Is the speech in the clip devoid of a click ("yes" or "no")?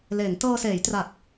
yes